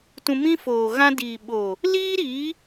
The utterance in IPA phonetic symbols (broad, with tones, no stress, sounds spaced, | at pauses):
t ũ˧ m ĩ˦ f oː˨ ɣ ã˧ d iː˨ ɓ oː˨ | l iː˦ ɾ iː˨˦